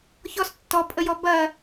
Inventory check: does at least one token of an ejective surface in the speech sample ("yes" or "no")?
yes